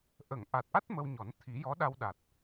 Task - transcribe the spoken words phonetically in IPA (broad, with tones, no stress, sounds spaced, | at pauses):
ʔ ə˨˩˨ ŋ ʔ a˨˩ t̚ ʔ a˦˥ t̚ m ə˧ w ɲ ɔ˨˩˦ n t̪ʰ i˨˩˦ j ɔ˧˥ ɗ a˧ w ɗ a˨˩ t̚